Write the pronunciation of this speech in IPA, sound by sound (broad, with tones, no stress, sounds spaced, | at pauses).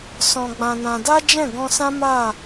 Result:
s ɔ̃˧ ɡ͡b ã˧ n ã˧ d a˦ d͡ʒ ɛ̃˦˨ ɡ ɔ̃˧ s ã˦ m a˦˨